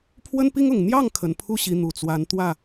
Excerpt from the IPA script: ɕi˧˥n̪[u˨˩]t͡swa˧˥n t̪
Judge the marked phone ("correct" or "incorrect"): correct